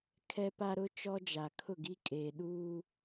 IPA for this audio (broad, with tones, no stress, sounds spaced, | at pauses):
kʰ ɛ˦ p a˦ ɾ ʊ˦ t͡ʃ ɔ˦ d͡ʒ a˨ kʰ ʊ˦˨ ɡ i˦ kʼ eː˨ ɗ uː˦